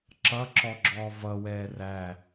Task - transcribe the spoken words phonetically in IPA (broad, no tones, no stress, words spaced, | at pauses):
ǁʌǁɔɡ͡ǁɔː vʌwɛː ræ